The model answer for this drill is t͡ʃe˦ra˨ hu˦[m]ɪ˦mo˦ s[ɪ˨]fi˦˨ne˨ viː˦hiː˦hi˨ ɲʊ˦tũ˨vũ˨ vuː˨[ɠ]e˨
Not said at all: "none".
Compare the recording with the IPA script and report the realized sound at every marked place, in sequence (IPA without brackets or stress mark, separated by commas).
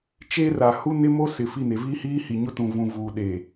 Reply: n, ɪ˨, ɗ